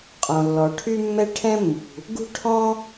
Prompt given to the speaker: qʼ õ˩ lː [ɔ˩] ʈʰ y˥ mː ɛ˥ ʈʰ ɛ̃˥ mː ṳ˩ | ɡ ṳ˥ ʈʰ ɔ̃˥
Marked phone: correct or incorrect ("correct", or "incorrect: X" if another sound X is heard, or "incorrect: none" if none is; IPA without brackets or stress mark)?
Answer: correct